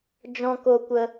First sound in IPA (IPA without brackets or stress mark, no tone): d͡ʒ